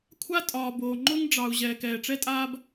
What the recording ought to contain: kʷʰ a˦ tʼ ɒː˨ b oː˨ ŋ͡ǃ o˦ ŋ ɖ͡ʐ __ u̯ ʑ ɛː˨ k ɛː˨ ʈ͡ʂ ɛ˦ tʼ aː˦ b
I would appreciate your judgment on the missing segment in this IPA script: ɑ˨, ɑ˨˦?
ɑ˨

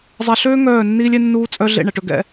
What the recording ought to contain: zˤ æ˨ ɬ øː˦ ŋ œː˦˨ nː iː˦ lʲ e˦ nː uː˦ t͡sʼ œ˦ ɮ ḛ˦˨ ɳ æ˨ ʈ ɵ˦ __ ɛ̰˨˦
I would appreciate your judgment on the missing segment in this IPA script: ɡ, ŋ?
ɡ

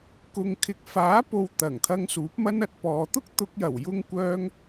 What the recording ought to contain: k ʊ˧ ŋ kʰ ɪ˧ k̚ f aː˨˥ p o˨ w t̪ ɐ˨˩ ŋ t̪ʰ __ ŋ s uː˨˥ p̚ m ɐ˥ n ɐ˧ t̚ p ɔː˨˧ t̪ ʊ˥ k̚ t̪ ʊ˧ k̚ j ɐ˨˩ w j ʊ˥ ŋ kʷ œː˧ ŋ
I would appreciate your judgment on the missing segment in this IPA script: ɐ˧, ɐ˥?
ɐ˧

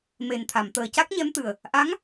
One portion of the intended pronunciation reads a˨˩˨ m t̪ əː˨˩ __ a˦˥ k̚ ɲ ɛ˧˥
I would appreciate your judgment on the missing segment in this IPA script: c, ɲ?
c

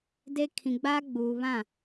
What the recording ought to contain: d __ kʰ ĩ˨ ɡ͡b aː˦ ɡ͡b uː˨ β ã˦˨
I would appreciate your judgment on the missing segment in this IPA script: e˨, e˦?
e˦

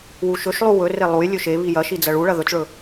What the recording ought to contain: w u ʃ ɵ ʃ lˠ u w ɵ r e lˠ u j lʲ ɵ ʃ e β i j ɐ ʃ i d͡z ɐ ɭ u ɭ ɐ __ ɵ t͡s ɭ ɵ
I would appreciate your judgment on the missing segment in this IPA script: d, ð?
ð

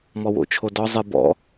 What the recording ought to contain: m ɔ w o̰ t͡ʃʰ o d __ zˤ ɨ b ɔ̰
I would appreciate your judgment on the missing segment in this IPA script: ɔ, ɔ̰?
ɔ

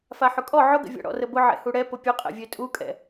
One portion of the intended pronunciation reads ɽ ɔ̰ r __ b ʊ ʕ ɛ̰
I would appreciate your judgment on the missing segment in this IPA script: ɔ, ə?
ə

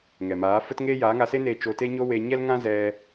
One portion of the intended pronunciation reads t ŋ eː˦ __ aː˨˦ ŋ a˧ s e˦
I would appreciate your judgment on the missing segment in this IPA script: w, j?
j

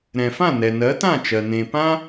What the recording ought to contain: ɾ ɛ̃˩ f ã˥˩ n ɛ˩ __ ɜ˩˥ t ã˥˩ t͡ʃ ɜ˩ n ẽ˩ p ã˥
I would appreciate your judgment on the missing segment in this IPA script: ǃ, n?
n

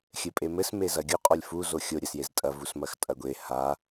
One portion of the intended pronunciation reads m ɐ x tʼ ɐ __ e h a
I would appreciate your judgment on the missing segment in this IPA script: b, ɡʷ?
ɡʷ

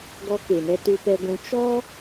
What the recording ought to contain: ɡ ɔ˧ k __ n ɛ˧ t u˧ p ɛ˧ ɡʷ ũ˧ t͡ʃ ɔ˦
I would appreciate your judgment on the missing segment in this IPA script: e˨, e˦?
e˨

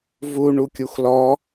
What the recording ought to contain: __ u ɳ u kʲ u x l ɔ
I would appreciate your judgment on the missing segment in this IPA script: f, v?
v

